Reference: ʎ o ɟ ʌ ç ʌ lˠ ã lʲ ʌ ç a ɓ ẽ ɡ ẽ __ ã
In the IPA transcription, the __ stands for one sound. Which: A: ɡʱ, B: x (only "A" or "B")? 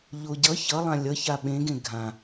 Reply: A